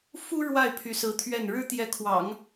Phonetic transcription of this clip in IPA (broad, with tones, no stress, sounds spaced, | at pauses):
f u˥ ɻ w a˥˩ ɪ̯ pʰ y˧˥ s ɹ̩˧˥ t̪ʰ ɥ ɛ˥˩ n ɻ ɻ̩˥ t̪ j ɛ˧˥ kʰ w ɑ̰˨˩˦ ŋ